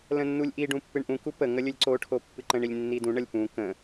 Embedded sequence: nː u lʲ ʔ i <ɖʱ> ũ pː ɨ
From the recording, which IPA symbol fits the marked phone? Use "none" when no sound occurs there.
ɖ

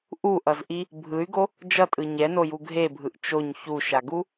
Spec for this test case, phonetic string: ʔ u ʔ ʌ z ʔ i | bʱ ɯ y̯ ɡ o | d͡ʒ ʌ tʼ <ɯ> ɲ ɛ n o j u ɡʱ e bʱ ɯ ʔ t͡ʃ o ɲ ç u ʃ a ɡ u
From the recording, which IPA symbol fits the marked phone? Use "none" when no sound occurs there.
ɯ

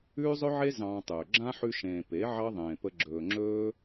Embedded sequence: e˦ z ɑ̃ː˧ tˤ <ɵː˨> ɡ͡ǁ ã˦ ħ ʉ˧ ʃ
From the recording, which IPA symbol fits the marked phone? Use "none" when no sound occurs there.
ɵː˨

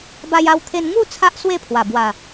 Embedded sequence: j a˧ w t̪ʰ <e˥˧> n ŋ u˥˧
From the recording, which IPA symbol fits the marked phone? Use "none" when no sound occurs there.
e˧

